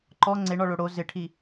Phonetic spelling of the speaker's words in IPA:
ǃ ɔ ŋ͡ǀ e ɳ ɔ ɭ o ɽ o z ɪ ʈʰ i

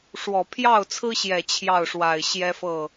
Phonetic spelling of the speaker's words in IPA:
ʂ w ɔ˨˩ pʰ j ɑ˥˩ ʊ̯ t͡sʰ ɹ̩˥ ɕ j ɛ˨˩ t͡ɕʰ j ɑ˥˩ ʊ̯ ʂ w a˨˩ ɪ̯ ɕ j ɛ˥ f ɤ˥˩

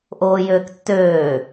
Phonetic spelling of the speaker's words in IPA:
ʔ oː j øː k tː øː

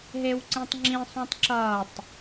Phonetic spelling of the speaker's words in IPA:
ɦ e w ǀ ĩ tˤ ŋ͡ǁ ĩ sˤ ũ tˤ ǁ ʌː tˤ

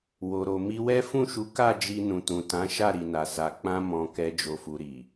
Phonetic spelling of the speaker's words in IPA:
w o˨ ɾ o˨ m i˧ w ɛ˦ f ũ˦˨ ʃ u˨˦ k a˦˨ d͡ʒ i˧ n ũ˨ t ũ˨ t ã˨˦ ʃ a˦˨ ɾ i˨ n a˨ s a˨ k͡p ã˧ m ɔ̃˨ k ɛ˨ d͡ʒ o˨ f u˨ ɾ i˨

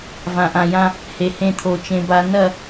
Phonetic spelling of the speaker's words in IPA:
v ã˨ ʔ ã˨ j ã˦ | h e˨ h ẽ˦˨ t̪ʰ o˨ t͡ʃ ẽ˨ b a˨˦ n ɐ˦˨

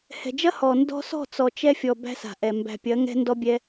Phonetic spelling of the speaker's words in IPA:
h ɛ̤˨ d͡ʒ ɐ˦ h ɔ˨ n d ɔ̤˧ s ɔ̤˦˨ t͡s ɔ˨ t͡ʃ ɛ˧ fʲ ɔ˨ b æ̤˦ s a̤˨ ʔ ɛ˨ m b æ̤˨ pʲ ɐ˨˦ ŋ ɛ̤˦ n d ɔ˦ bʲ ɛ˦

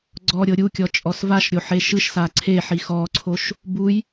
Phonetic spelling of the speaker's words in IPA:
ɡ͡ǀ ɔ ɾʲ ɤ ɾʲ u kʲ ɔ t͡ʃʼ ɔ s v a ʃ ɾʲ o ħ e ʃ ɯ ʃ s a ǀʰ e ħ i x ɔ ǀʰ o ʃ | b u j

